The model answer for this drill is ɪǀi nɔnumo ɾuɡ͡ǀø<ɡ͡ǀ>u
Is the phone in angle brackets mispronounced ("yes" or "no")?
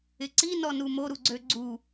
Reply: no